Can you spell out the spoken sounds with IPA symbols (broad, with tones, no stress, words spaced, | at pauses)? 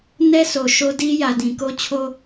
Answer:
nɛ˦so˨ ʃo˦di˦ jä˨dĩ˨ ko˦t͡ɕʰo˦